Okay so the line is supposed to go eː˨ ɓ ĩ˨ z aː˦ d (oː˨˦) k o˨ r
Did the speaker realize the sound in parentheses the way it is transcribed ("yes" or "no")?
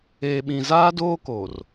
no